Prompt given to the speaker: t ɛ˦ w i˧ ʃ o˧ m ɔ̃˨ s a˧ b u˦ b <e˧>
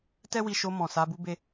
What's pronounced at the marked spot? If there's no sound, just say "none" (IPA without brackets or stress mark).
e˦